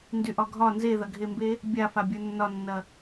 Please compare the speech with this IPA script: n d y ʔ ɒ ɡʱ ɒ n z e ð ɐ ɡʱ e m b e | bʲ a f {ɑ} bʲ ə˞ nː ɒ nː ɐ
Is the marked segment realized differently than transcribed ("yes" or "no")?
yes